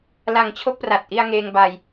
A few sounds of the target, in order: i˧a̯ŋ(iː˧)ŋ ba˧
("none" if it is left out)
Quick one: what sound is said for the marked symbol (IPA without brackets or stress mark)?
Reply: eː˧